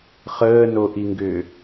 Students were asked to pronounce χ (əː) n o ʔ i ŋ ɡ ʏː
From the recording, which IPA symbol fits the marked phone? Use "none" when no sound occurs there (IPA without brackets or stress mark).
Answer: əː